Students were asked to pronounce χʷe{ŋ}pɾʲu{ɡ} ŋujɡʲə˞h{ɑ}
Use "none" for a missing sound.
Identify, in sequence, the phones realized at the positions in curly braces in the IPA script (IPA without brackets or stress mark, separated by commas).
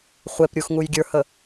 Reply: none, x, ə